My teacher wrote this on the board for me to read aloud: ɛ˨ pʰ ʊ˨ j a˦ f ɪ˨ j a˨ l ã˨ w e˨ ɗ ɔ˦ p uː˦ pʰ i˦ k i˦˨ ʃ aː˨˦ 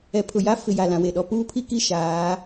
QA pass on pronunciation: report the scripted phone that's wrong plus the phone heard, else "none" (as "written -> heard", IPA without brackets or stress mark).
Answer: none